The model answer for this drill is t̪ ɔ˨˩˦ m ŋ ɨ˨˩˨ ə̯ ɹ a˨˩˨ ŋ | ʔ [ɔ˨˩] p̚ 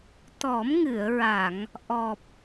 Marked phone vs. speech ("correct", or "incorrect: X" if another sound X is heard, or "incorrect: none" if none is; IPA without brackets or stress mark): correct